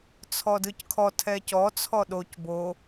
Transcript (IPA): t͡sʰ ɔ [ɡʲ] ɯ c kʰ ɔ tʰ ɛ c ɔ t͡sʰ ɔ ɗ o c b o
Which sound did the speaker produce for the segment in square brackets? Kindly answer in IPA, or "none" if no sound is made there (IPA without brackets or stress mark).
d